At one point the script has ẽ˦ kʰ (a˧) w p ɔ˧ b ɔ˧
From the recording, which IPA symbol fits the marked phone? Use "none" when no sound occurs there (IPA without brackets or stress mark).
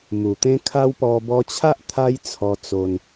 a˦